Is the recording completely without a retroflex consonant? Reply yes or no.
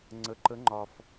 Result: yes